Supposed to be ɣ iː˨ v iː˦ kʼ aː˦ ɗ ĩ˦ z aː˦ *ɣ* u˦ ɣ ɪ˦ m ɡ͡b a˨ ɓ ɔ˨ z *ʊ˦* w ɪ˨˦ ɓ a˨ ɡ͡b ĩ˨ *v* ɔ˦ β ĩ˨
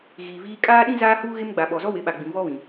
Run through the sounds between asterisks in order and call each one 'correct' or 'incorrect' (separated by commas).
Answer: incorrect, incorrect, correct